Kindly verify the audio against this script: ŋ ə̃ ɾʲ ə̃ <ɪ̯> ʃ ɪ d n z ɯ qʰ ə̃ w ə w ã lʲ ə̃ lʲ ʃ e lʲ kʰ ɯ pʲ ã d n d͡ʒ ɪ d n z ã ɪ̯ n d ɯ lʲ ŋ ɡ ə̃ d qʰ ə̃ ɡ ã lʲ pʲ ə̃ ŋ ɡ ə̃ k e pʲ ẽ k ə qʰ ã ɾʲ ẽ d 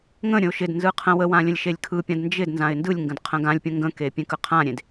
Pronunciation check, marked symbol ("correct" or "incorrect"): incorrect